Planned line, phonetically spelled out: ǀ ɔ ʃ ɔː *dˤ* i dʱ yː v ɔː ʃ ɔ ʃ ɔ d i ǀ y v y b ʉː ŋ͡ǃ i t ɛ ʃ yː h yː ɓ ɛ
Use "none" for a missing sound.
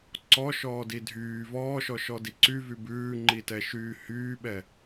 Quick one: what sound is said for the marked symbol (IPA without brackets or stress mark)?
d